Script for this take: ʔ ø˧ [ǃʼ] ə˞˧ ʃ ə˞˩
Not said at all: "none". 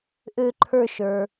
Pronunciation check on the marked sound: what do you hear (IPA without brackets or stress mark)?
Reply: ǃʰ